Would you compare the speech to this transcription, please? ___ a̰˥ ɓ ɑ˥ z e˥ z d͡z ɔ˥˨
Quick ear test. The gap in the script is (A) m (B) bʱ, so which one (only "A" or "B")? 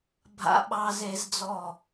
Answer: B